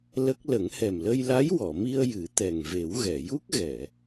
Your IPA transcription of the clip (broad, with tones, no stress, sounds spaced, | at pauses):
l ə˦˥ k̚ l ə˨˩˦ ŋ h ɛ˨˩ m l ə˧ j l a˧˥ j w ɔ˨˩˨ m i˧ ə̯ j ɨ˨˩˦ t̪ ɛ˨˩ ŋ v e˨˩˦ w ɣ ɛ˨˩˨ j u˦˥ k̚ ɣ ɛ˨˩˨